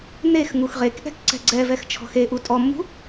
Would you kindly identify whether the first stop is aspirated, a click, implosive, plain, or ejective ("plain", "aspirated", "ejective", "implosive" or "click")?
plain